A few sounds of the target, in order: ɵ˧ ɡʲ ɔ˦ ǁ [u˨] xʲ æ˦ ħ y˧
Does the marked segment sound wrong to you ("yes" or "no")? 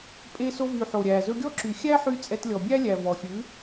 yes